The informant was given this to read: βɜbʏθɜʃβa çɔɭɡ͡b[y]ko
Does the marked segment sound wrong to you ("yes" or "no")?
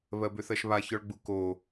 yes